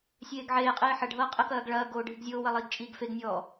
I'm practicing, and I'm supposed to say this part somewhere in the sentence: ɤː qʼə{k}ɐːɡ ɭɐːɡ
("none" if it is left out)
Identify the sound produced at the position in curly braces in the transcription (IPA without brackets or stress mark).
k